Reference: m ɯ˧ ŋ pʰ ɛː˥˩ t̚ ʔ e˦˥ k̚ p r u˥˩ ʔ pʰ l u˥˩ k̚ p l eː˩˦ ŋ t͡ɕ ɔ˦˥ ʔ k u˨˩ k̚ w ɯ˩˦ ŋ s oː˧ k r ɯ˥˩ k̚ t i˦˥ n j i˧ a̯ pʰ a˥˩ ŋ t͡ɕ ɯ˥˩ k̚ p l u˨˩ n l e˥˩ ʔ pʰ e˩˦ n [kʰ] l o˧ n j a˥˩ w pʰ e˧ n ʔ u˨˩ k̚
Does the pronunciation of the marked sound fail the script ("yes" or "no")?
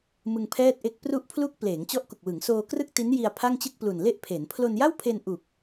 yes